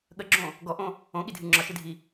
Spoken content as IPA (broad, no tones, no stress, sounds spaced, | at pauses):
ɠ ə ɡ͡ǁ õ | ɡ ɔ ʔ õ | õ ɠ i dʱ ɨ ŋ͡ǁ ɒ ʃ ɨ dʱ i